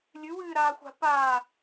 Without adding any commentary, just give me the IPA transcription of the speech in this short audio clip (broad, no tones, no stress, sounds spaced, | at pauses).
lʲ ɨ w ɨː ɾ aː xʷ a̤ p aː